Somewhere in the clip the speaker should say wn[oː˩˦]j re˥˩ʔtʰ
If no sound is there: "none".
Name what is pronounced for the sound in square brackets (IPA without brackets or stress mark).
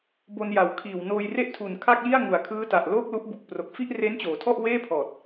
oː˧